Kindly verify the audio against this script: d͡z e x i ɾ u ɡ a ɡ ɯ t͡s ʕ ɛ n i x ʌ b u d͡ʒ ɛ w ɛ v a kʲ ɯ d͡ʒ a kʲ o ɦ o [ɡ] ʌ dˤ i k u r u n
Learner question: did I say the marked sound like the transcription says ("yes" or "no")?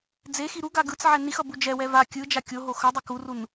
no